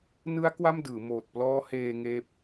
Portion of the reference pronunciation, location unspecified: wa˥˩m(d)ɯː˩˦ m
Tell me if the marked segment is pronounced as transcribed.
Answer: yes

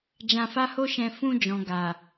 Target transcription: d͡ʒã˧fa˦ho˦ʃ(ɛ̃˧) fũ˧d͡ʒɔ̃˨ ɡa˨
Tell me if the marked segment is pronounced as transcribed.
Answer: yes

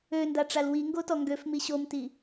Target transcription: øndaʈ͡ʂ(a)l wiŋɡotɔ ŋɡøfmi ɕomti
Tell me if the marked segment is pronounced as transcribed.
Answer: yes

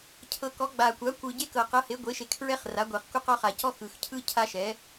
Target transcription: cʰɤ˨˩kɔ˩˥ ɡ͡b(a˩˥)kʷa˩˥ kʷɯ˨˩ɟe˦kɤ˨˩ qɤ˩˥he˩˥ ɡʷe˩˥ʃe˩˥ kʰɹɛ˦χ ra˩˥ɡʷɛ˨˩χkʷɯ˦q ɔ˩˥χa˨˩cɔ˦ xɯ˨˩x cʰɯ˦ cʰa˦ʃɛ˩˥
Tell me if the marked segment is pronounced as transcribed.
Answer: no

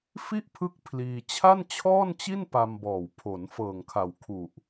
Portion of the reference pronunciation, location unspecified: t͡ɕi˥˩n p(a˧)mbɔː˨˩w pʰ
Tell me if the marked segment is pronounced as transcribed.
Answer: yes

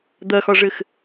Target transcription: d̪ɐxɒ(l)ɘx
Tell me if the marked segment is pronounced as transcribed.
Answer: no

